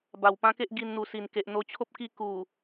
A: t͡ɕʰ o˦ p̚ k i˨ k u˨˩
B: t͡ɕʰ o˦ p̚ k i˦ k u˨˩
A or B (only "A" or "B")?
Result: B